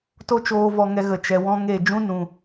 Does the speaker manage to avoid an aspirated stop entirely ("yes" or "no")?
yes